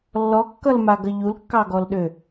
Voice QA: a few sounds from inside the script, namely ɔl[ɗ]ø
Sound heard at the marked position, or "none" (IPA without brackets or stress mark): ɗ